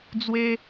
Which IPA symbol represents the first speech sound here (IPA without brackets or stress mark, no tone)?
d͡z